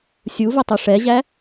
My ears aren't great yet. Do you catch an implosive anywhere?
no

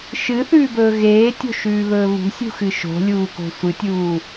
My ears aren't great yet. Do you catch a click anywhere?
no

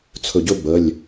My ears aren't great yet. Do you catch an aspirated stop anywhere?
yes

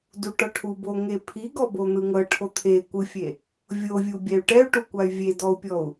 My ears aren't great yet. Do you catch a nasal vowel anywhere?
no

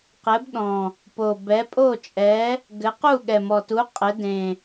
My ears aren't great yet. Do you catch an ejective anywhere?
yes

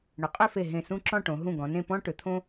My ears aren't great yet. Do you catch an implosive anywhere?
no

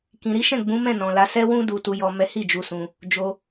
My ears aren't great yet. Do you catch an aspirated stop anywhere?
no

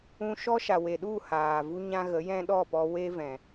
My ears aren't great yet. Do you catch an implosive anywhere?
yes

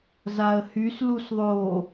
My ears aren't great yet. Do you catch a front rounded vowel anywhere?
yes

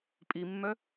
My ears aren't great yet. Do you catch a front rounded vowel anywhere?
yes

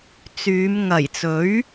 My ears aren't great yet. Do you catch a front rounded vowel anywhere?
yes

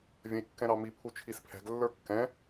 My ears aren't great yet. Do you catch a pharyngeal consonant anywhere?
no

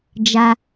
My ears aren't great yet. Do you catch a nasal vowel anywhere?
no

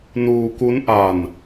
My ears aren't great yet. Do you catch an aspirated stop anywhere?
no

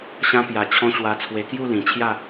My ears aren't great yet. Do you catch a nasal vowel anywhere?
yes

